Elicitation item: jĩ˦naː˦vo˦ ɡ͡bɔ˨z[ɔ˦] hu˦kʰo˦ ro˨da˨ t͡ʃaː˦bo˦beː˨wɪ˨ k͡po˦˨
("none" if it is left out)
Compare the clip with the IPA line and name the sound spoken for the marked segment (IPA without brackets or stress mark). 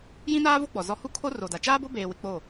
ɔ˦